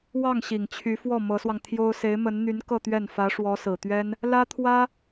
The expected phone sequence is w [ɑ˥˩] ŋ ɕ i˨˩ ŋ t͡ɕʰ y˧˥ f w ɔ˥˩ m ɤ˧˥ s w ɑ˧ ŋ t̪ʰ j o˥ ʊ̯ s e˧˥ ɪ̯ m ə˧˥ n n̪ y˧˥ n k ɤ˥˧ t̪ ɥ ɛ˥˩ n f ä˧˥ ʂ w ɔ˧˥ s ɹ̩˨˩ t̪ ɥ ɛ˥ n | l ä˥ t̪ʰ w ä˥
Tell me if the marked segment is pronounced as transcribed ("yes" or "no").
yes